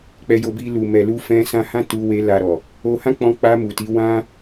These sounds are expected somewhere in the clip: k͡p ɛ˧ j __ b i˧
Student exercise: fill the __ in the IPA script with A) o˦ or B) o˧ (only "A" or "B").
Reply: B